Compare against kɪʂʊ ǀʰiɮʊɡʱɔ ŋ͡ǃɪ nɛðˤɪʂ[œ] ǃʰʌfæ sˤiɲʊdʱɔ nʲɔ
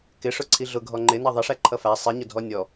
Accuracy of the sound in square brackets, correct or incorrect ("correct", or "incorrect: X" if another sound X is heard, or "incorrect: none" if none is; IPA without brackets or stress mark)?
incorrect: æ